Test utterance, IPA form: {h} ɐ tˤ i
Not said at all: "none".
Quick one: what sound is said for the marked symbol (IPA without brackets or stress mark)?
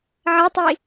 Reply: ʕ